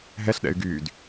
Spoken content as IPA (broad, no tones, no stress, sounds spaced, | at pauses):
ɦ ɛ ɬ ɗ ɛ̰ y̯ ɡ yː d